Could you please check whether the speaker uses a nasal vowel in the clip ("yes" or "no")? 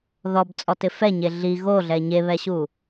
no